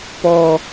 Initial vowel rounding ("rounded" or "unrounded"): rounded